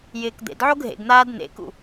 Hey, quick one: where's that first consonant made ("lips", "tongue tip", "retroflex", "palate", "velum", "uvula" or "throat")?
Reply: palate